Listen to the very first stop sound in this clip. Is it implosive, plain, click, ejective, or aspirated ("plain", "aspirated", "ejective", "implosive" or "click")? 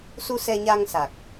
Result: plain